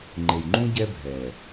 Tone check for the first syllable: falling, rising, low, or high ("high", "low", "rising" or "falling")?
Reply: low